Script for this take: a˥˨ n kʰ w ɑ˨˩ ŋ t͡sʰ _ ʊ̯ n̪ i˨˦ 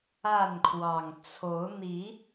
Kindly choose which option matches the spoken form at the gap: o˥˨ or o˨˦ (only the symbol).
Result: o˨˦